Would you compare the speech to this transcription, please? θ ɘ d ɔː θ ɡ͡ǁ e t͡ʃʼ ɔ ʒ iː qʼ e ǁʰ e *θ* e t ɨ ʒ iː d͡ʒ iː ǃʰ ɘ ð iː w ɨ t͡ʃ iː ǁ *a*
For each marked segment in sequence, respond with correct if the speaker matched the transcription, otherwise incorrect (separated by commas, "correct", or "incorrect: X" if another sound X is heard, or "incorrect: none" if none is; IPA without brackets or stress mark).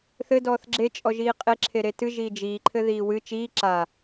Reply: incorrect: ɾ, correct